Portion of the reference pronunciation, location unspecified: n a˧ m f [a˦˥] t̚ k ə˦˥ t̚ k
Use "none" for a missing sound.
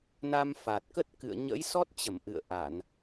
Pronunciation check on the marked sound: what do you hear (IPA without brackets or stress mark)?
a˨˩